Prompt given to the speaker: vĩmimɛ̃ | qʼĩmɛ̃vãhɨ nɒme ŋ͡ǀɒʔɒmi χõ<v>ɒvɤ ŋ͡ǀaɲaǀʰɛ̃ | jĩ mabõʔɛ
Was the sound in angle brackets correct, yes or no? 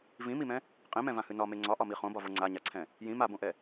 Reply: no